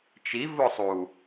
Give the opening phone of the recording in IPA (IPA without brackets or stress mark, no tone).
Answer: t͡ʃ